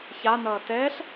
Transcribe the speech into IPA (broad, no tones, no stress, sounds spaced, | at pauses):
ç a n ʌː t ɛː ɬ